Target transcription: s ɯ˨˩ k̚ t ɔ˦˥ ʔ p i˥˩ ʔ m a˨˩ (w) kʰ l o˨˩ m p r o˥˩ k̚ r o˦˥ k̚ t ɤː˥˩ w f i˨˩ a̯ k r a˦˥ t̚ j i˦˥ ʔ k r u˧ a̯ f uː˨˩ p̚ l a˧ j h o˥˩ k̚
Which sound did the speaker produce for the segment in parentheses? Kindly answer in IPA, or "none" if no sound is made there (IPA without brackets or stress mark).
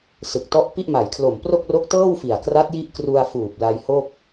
j